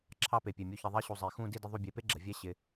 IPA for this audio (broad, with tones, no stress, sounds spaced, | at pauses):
ǁʰ ɑ˥˧ p e˧˩ pʲ ɛ˧˩ mʲ u˧ ç ɪ˧ ðˤ i˥ ɕ u˧ zˤ e˧˩ x ũ˥˧ d i˥˧ d ɪ˥ ðˤ u˥˧ bʲ e˧ p e˥ ɡ͡ǁ ə˩˧ vʲ ɛ˥ ɕ ɪ˧